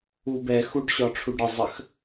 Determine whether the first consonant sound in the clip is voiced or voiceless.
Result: voiced